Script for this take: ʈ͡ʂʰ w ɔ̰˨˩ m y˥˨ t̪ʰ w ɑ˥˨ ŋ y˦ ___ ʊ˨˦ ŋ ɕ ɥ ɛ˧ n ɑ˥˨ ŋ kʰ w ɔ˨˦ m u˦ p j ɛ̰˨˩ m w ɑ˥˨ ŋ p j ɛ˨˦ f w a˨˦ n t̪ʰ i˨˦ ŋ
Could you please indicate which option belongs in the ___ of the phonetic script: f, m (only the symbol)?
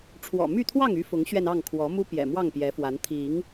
f